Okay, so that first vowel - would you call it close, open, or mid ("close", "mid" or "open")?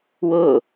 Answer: close